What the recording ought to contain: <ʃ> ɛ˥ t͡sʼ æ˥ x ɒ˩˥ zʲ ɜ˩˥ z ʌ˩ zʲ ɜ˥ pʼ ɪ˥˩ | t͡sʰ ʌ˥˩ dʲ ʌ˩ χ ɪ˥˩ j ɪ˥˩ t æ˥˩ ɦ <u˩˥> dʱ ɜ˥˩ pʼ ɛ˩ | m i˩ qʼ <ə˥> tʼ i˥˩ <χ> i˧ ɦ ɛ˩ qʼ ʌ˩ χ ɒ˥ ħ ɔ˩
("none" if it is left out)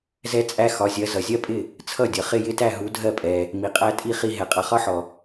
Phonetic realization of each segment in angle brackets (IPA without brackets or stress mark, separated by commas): z, u˩˥, æ˥, χ